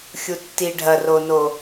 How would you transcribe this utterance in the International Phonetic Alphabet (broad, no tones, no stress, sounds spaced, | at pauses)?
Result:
xʲ u tː i ɖʱ ɐ r o n o